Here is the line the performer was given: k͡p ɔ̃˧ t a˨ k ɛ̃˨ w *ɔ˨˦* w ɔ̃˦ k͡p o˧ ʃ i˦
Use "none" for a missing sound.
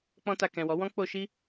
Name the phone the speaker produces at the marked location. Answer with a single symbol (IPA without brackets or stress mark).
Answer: ɔ˨˦